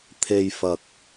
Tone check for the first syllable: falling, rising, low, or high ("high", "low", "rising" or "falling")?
low